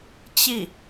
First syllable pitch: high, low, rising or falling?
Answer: falling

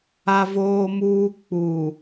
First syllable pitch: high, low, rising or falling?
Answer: high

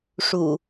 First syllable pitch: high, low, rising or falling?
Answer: low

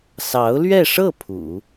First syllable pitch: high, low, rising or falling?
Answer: rising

